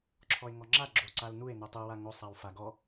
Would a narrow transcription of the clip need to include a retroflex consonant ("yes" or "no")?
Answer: no